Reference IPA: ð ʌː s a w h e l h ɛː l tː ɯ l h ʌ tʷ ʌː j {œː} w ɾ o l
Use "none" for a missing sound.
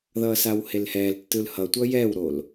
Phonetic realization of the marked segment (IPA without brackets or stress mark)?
ɛː